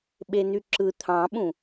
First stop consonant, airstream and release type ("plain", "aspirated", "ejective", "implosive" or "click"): implosive